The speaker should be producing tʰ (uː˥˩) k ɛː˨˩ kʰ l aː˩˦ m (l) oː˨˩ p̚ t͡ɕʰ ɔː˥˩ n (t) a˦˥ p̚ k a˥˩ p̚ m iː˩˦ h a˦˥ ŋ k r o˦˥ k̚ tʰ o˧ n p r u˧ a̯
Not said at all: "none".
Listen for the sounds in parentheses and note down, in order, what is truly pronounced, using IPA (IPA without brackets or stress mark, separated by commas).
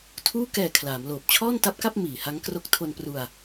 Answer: uː˥˩, l, t